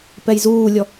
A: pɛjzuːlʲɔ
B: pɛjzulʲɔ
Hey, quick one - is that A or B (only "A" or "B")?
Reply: A